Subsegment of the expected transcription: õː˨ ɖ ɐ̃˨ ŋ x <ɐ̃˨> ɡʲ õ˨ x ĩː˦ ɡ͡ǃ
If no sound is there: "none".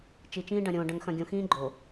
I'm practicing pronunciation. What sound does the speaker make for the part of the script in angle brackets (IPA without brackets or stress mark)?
ɐ̃˨